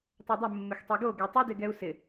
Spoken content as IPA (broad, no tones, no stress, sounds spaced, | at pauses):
tˤ ɜ dˤ ɪ mː ɪ x tˤ ɛ ɡ o ɡ ɛ tˤ ə d ɪ ɡ ɛ u̯ s ɪ